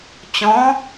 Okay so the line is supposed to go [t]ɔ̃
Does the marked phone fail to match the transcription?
yes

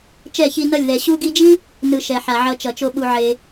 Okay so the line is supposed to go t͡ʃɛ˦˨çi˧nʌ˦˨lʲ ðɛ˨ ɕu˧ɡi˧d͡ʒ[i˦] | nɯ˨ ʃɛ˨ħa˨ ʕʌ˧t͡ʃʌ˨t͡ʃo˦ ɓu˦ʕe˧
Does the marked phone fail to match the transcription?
no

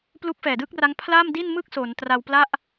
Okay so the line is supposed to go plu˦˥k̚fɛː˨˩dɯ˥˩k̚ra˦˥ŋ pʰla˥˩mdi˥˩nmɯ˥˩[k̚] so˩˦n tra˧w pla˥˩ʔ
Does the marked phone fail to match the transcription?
no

